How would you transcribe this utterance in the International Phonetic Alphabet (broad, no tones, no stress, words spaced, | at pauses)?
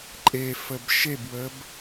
ǃʼefəb ʃebwəb